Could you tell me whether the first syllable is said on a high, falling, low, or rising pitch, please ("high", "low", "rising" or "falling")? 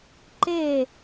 falling